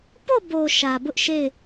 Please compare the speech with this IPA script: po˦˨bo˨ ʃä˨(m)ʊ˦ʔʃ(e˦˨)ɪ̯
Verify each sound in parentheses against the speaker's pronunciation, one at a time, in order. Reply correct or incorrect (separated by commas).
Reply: incorrect, correct